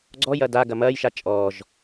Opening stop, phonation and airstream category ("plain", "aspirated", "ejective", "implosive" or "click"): click